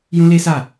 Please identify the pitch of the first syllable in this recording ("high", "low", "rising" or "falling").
high